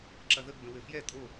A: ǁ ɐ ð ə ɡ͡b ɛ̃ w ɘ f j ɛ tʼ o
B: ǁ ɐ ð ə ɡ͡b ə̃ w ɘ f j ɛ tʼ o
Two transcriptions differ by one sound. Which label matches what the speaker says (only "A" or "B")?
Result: B